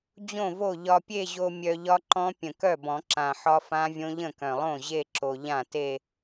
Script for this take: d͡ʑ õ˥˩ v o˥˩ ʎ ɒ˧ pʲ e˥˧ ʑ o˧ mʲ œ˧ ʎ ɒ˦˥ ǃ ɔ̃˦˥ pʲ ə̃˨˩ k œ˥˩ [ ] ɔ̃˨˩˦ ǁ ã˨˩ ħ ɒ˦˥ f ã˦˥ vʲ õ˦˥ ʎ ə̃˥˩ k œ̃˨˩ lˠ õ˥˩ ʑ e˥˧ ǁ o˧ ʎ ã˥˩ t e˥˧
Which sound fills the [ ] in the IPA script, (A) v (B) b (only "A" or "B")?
B